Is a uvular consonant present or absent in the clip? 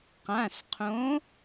present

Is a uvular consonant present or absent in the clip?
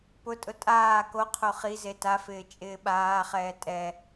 present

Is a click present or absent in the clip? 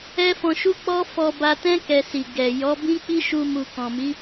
absent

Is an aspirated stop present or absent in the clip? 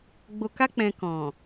absent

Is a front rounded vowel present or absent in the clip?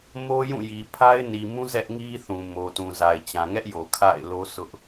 absent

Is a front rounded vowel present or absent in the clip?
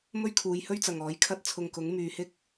present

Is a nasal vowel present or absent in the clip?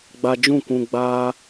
present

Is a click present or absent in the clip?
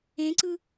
present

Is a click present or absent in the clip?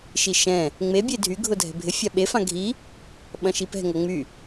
absent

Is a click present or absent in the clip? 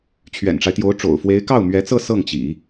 absent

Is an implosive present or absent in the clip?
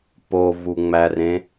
absent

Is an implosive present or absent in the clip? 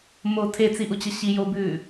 absent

